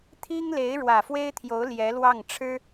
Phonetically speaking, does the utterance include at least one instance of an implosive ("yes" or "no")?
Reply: no